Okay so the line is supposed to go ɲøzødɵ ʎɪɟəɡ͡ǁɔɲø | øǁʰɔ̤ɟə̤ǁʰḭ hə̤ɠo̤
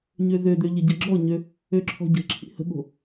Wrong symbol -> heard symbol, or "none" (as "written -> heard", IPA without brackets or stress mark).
ɵ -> ø